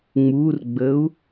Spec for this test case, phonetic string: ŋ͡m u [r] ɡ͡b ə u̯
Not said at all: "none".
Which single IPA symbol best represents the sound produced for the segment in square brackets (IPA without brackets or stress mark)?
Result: r